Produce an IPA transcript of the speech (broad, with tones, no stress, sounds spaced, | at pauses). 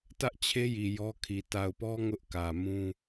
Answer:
t ä˦ ʔ t͡ɕʰ e˦ j i˨ j ɔ˦ kʰ i˨ t a˨ ʊ̯ p ɔ˦ ŋ ʊ˦ ʔ k ä˨ m ũ˦